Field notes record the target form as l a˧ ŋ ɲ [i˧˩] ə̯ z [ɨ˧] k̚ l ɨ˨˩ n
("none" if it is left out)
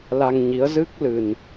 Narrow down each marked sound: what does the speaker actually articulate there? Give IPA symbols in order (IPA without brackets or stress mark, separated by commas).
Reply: i˨˦, ɨ˦˥